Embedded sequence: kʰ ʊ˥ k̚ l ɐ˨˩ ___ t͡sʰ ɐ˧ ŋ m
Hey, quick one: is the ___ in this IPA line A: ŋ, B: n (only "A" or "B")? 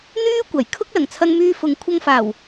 A